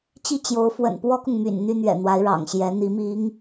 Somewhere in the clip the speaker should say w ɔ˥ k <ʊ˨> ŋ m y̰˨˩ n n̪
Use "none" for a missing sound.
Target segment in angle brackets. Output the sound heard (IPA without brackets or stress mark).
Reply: ʊ˨